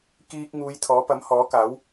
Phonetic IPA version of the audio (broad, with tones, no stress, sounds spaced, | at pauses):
k iː˧ k̚ ŋ uː˨˧ j t̪ʰ ɔː˨˥ p ɐ˨˥ m h ɔː˨˥ k aː˨˥ w